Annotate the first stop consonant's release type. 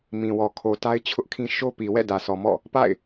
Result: aspirated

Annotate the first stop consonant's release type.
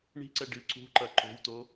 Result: click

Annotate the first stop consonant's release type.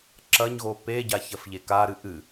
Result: click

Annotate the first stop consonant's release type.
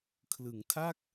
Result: aspirated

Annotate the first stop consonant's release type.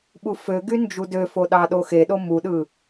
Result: implosive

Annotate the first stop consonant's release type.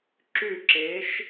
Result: click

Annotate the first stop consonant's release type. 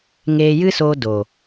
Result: plain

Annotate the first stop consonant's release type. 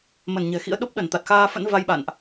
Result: implosive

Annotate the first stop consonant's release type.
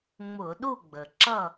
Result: implosive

